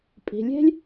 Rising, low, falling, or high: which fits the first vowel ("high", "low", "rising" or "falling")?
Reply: low